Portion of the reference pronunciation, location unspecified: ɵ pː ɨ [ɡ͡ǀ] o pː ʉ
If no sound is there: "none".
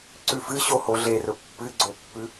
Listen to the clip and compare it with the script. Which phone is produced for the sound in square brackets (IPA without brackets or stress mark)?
ɡ͡ǀ